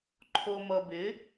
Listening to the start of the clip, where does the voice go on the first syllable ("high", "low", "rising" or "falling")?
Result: low